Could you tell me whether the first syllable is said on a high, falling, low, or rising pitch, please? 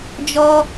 high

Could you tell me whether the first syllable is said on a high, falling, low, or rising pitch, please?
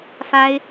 high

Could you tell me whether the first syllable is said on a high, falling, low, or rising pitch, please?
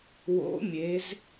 rising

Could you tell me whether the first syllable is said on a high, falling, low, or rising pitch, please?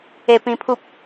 low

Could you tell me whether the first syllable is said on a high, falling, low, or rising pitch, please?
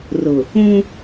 low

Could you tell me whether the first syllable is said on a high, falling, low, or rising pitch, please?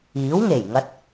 rising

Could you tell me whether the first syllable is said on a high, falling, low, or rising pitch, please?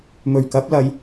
low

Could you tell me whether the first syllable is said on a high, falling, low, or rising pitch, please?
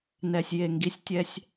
low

